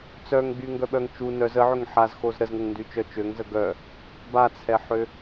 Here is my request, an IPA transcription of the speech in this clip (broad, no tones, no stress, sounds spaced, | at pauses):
t͡s œ ŋ ɡ͡b y ŋ ɡ œ ɓ œ ŋ t͡ʃ u n œ z ə ʕ ø ŋ ħ a z x o z ɾ ə z ŋ ə ŋ n d y t͡ʃ œ t͡ʃ ø ŋ z ə ɡ œ | b a t͡sʰ ɛ ħ ø